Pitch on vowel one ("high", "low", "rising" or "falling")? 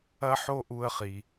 high